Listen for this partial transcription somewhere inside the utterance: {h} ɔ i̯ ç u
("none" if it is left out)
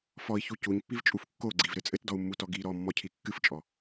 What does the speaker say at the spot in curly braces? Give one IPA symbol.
f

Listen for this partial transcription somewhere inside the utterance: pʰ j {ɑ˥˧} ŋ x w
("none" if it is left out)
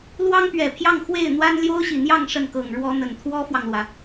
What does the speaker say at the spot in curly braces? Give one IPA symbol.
ɑ˥˧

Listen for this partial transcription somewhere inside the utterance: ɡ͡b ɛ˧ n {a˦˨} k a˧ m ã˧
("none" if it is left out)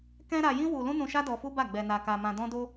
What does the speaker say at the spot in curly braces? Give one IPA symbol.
a˧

